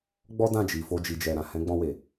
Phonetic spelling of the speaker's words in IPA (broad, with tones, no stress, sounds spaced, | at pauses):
ɡ͡b ɔ˦ d ã˦˨ d͡ʒ i˨ f o˧ d͡ʒ i˨ d͡ʒ ɛ˨ ɾ ã˨ h ɛ̃˨˦ ɡ͡b ɔ̃˧ w e˨